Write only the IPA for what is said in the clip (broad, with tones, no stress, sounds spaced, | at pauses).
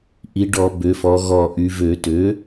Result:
ʔ i˩˧ ɖ ɔ˧˩˧ b ø˩˧ f ɔ˩˧ ɣ ɔ˧˩ ʔ y˩˧ v ø˧˩˧ t ø˩˥